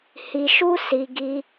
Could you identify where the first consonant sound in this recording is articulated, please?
glottal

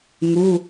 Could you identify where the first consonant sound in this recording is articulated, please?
velar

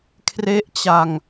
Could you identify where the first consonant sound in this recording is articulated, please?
velar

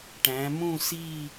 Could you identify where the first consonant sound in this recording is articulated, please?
retroflex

